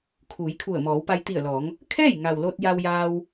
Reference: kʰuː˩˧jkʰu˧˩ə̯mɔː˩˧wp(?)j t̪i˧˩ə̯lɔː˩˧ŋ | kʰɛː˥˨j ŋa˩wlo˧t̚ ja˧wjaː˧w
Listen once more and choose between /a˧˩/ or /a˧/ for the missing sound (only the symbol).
a˧